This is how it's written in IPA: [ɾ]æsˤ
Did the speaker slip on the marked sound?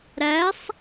no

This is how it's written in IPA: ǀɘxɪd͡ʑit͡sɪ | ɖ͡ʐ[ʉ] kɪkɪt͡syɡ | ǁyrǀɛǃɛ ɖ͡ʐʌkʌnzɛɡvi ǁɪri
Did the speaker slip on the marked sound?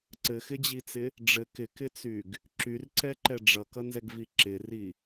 yes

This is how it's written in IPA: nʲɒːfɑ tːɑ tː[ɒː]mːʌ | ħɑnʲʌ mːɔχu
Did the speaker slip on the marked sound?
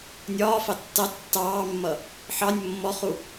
yes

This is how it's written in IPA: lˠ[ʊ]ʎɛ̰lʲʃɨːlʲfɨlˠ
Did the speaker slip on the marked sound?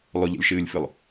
no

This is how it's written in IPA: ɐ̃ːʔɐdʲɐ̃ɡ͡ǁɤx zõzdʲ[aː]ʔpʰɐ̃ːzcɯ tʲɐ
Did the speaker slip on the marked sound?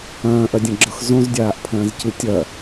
no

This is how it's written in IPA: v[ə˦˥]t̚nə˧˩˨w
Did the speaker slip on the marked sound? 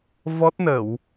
yes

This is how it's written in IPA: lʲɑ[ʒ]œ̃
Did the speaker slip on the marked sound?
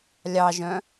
no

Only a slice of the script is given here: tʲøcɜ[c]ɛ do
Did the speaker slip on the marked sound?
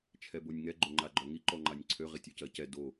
no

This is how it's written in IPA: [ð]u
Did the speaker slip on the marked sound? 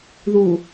no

